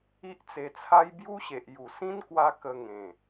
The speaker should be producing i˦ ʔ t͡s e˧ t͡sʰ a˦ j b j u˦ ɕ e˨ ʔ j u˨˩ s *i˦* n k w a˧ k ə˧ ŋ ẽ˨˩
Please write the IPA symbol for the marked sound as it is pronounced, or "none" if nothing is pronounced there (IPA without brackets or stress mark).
ĩ˦